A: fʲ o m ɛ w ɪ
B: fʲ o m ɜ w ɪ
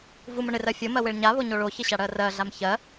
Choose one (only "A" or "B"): B